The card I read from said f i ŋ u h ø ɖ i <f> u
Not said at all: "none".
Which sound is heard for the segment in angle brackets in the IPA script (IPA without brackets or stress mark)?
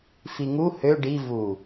v